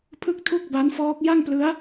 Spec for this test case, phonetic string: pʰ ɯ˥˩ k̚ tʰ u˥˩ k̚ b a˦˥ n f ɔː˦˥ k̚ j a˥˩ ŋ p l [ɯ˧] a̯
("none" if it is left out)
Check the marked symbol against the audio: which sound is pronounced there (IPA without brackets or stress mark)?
ɯ˦˥